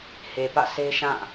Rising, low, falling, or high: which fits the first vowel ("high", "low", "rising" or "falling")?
low